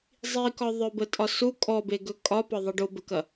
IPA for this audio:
zˤ i k ɒ ðˤ œ b ə tʼ ɒ s u kʼ ɔ b e ɡ ɵ kʼ ɒ p ɒ ðˤ ɐ ɖ o b ə k ɐ

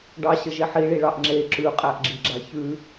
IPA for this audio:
ɖ ɑ ɕ ə ʒ e ħ i ɭ i ɭ ɑ ʔ ŋ͡ǁ e ǁ ʉ qʼ æ ʔ ɡ͡ǁ i ɡ͡ǁ a ç ʉ

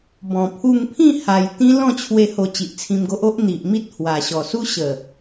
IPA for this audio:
b ɔ̃˨˩ pʰ u˧ ŋ pʰ ĩ˥˧ h a˧ j t̪ ĩ˦ l ɔ̃˥˧ t͡ɕʰ w e˧ h o˧ t͡ɕ i˨ ʔ t͡sʰ ĩ˧ m ɡ o˦ ʔ o˦ ʔ n̪ i˨ ʔ m i˦ t̚ h w a˨˩ ɕ ɔ˨˩ s u˦ ɕ ə˨˩

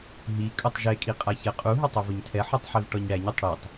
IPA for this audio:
ɦ i kʼ ɵ tˤ ʒ e kʼ i qʼ a ç ɛ qʼ u ɦ ɵ tˤ u v ɵ ɲ tʰ ɛ ħ u tˤ ħ i v ʈ ɔ ɲ ɽ æ ɲ ɵ tˤ ɽ i tˤ

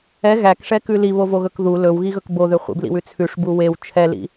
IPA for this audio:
ɛ ɣ æ k ʂ ɛ k ʉ l i β o v o ɣ ɵ k ð u l ɵ w ɣ i ɣ ɵ k b o ð ø χʷ ḭ b l ḭ w ʉ t͡sʰ ʉ ʂ b u w e w t͡ʃʰ ɛ l ḭ

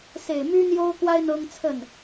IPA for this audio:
s e˨˩ ɪ̯ m y˥ n̪ j o˥ ʊ̯ k w a˥ ɪ̯ n̪ ɤ˥ ŋ t͡sʰ ə˥˩ n

